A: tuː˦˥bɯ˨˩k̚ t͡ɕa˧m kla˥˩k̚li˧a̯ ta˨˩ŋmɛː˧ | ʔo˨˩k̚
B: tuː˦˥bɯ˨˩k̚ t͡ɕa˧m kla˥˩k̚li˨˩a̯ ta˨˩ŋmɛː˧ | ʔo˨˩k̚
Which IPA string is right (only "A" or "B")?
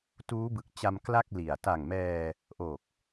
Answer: B